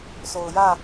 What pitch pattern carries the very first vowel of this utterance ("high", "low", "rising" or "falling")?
low